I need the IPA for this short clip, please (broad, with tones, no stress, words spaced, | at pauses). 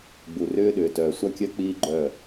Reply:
ɡ͡bu˨rʏː˦ɗʏː˨tœː˨ sʷa˦kʲœ˦ k͡piː˦ɡ͡ǃœ˦˨